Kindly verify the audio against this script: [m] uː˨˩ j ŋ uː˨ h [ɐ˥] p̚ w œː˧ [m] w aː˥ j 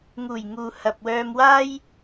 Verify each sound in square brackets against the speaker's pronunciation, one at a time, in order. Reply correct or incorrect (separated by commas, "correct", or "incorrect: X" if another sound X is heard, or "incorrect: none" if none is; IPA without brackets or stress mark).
incorrect: ŋ, incorrect: ɐ˨, correct